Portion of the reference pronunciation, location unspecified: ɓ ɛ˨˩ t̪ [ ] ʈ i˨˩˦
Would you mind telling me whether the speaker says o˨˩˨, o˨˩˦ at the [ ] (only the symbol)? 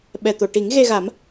o˨˩˨